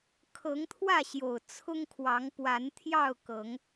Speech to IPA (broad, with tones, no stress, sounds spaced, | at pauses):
kʰ ɤ˨˦ ŋ t̪ʰ w ä˥˨ ɕ j o˨˩ ʊ̯ t͡sʰ ʊ˦ ŋ kʰ w ɑ˨˦ ŋ p w a˨˦ n t̪ʰ j ɑ˥˨ ʊ̯ k ɤ˨˦ ŋ